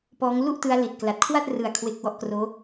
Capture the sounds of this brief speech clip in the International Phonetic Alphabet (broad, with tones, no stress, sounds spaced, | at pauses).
p ɔː˦˥ ŋ l u˥˩ ʔ t ɯ˦˥ a̯ l i˨˩ t̚ k l a˨˩ t̚ kʰ w a˥˩ t̚ r ɯ˨˩ a̯ kʰ w e˨˩ k̚ w ɔ˦˥ ʔ k r oː˦˥